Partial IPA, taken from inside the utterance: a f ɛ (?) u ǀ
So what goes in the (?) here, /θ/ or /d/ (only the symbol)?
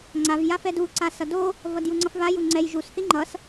d